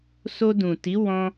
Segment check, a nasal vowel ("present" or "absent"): present